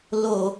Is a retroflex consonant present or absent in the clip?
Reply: absent